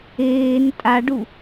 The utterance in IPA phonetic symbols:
eːn tʼaɖu

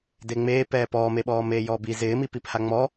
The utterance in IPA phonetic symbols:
deŋ͡meː pɛːpɔːmeɓɔː meːjɔːbi zɪːmipipha ŋ͡mɔ

